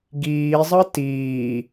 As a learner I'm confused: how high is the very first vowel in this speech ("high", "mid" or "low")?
high